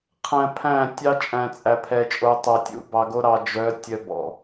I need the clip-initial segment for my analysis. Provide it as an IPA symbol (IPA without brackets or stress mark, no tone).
qʰ